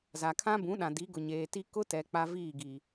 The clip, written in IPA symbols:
z a˨ kʰ ã˦ b ũ˨˦ ɗ ã˨ d i˨˦ ɡ ʊ˨ ɲ eː˨ t i˦ k ʊ˦ t ɛ˨ k͡p a˦ v iː˦˨ ɡ i˨

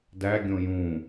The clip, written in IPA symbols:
d æ ɡʲ õ j ũ

